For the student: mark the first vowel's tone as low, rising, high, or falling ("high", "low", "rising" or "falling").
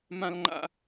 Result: high